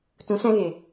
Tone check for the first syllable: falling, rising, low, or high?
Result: rising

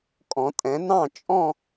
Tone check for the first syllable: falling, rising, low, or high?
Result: rising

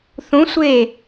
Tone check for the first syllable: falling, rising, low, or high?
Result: rising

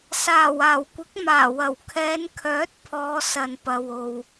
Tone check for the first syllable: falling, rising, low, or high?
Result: low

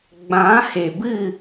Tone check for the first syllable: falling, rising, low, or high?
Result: rising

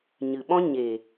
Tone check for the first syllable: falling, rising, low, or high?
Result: low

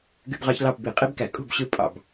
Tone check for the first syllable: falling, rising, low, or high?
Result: high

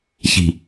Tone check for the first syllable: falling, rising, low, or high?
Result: low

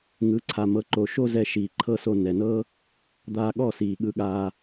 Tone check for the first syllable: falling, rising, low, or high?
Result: rising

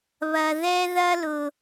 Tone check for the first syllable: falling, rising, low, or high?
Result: low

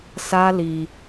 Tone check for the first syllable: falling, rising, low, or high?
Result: high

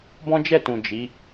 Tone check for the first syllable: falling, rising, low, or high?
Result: high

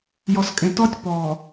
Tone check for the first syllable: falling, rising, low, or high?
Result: low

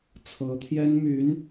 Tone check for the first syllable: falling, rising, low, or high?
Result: rising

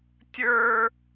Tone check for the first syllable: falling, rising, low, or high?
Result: high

